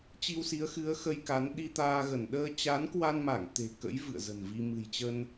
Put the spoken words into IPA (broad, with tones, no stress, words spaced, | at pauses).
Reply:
t͡ɕi˧wsi˨˦ə̯xɨ˨˦ə̯ xə˧jka˨˦n ɗi˧t̪aː˧ɣə˧˩n ɗəː˧t͡ɕa˨˦nkwa˧nma˧˩ŋ t̪e̤˨˩kə̰˧˥j vɨ̰˧˨ə̯zə̤˨˩nvi˧ mɨ̤˨˩jt͡ɕə˧n